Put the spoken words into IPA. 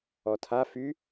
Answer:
ɔ tʰ a f y

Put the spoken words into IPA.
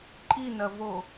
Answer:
ǃʼ i n ɐ v o

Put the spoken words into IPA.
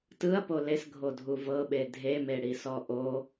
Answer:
t ɯ ɐ̯ p o l e s ɡʱ o dʱ u v ɤ ɓ e dʱ e m e ɽ i s ɔ ʔ o

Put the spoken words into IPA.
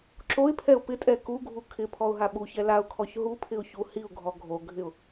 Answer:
ǁ o ɪ̯ pʰ ɛ ʊ̯ p ɪ tʼ ɛ k u ɡʱ u kʰ ɪ pʰ ɔ ʊ̯ ɦ a ɓ u ç ɛ l a ʊ̯ kʰ ɔ ç ɦ u pʰ ɪ ʊ̯ ç u h i ʊ̯ ɡʱ ɔ ɡʱ o ɡʱ ɪ ʊ̯

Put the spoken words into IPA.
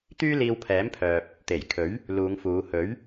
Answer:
t̪ yː˥ l iː˧ w pʰ ɛː˨˥ m pʰ œː˨ p̚ | t̪ e˨˩ j kʰ ɵ˨˥ ɥ | l uː˨˧ ŋ f uː˨˧ h ɵ˨˥ ɥ

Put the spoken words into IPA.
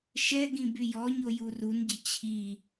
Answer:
ʃ ɛ ɡ ĩ b y j ɔ ɲ o j u r u n ɟ ə t͡ɕʰ i

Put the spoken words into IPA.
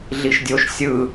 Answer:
ɮ i ʃ dʲ o ʃ sʲ ɯ

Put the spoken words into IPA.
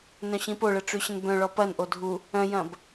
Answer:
n œ̃ ɕ ĩ p o ɭ ə ʈ͡ʂ ʉ ɕ ə̃ n b œ̃ ɭ ɔ p ɐ n ʔ o dʱ u | œ̃ j ɐ̃ b

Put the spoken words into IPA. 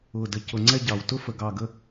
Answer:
ʊː˨˩ d ə˨˩ c ʊ˨˩ ŋ͡ǀ ɛ˥˧ ɟ ɑ˨˩ w t ʊ˥˧ f ə˨˩ ɡ ɑ˨˩ ɡ ə˥˧

